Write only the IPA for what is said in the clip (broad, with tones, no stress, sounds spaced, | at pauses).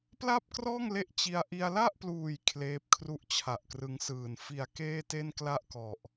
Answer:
p l a˥˩ p̚ k r ɔː˥˩ ŋ l e˦˥ ʔ t͡ɕ i˧ a̯ ʔ i˧ a̯ l a˥˩ ʔ p l uː˨˩ j kʰ l eː˦˥ p̚ kʰ r u˥˩ ʔ t͡ɕʰ a˨˩ ʔ k r ɯ˧ ŋ s ɯː˨˩ n f i˨˩ a̯ k eː˥˩ t e˥˩ n k l a˥˩ ʔ k ɔ˨˩ ʔ